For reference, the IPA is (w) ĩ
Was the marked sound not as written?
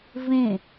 yes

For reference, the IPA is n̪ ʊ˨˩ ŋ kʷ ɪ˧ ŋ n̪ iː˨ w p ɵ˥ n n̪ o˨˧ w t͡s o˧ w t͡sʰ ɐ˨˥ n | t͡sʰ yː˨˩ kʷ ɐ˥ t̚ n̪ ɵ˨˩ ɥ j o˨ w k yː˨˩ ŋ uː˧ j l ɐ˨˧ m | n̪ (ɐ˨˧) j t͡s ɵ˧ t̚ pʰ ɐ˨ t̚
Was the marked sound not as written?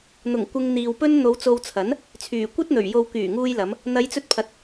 no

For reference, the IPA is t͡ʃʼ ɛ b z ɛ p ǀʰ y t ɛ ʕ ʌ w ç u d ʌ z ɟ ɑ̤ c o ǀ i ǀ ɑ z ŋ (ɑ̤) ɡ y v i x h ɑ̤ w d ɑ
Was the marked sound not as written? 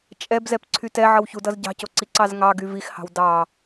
yes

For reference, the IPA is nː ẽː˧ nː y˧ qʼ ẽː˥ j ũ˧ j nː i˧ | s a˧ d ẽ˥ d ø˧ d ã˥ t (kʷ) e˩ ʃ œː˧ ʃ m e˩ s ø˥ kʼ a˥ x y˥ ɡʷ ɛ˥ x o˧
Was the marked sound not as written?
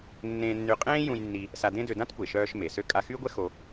no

